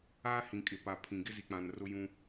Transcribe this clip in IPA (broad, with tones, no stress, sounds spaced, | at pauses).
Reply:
a˦ h ĩ˨ kʼ ɪ˨ p a˨ pʰ ĩ˨ ɡ ɪ˦ z i˨ k͡p ã˨ n r ʊ˦ j ũ˦